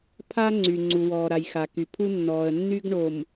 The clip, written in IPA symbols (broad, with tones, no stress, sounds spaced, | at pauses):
pʰ a˦ ŋ͡ǀ y˨ ŋ͡ǀ u˨ w ɔː˨ ɾ a˨ j x a˨ k y˨ pʰ u˦ nː ɔː˨ ə̯ nː y˦ ɡ ɳ o˨ m